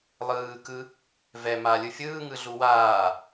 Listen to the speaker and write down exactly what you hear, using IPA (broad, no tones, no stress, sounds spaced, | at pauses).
lˠ ɯː k ɯ | v ɛ m a lʲ ɯ fʲ ɯː ŋ ɯ ɮ u w aː